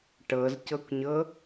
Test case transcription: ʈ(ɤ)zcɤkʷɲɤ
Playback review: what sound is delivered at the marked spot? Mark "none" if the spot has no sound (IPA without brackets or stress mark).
ɤ